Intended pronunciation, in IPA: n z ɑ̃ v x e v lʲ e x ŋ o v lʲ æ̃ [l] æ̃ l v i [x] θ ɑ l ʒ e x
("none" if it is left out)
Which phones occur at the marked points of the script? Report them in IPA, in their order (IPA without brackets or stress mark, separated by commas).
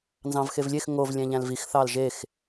ʎ, x